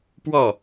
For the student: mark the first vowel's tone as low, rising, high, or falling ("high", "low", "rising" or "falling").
falling